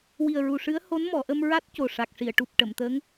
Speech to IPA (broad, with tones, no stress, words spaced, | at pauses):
wi˨˩ə̯ɹu˨˩ʂɨ˧˥ə̯ ho˧˥nmɔ˨˩˨ʔə˧m ɹa˦˥t̚ co˨˩ʂa˨˩k̚ ʂi˨˩˨ə̯ ʈu˨˩p̚ ʈə˨˩˨mt̪əː˧˥ŋ